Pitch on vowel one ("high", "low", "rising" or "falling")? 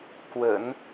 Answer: low